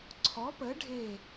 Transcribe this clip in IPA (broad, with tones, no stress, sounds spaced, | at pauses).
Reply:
ǀʰ ɔ˩˥ p ə˩˥ ɖʱ e˧˩